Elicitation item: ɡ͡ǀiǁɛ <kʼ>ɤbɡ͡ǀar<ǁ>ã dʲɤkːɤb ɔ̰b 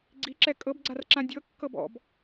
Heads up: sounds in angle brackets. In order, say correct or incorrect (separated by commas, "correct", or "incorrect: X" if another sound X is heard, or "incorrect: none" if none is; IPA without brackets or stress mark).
correct, correct